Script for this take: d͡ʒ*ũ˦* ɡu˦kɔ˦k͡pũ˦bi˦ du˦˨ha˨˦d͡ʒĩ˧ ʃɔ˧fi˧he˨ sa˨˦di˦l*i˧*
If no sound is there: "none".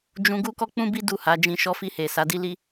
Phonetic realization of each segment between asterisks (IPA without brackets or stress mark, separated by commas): ũ˧, i˦